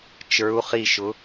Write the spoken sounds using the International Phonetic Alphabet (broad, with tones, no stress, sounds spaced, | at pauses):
t͡ʃ ə˞˨˦ u̯ χ i˧˩ ʃ ʊ˨˦